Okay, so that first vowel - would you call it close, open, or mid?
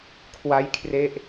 open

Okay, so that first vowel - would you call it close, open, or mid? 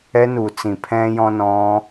mid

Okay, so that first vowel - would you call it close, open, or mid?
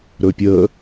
mid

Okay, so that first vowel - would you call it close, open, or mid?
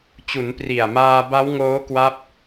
close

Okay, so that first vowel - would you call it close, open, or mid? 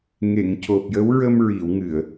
mid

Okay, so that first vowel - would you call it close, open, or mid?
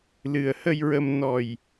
close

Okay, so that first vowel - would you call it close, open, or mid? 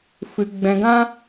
close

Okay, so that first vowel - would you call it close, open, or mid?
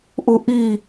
close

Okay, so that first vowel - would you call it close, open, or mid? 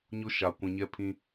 close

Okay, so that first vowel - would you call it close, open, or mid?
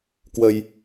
mid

